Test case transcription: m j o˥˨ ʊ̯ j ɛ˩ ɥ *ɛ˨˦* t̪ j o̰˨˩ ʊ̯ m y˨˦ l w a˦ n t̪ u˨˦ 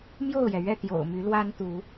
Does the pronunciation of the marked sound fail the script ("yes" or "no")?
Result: yes